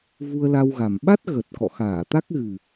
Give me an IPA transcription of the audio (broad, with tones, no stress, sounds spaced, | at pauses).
v u˧ ə̯ l a˧ w ɣ a˨˩ m ɓ a˦˥ t̚ ɣ ə˨˩ t̚ k ɔ̰˧˨ x aː˧˩ t̪ a˦˥ k̚ ɣ ɨ˨˩